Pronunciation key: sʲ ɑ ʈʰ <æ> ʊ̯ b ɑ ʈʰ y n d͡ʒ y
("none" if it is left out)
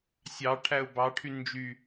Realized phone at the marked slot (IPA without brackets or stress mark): æ